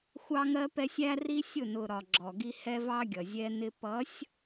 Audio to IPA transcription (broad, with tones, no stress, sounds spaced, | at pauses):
xʷ ɑ˦ ŋ ɜ˦ p ɛ˦ sʲ æ˦ r i˦ sʲ ʊ˦˨ n ʊ˨ ɾ ɒ˨ ɡ͡ǁ ɔ˨ ɡ i˦ h ɛ˦ v ɑ˦ ɡʲ ʌ˨ zʲ ɛ˦ n ɪ˦ p ʌ˨˦ sʲ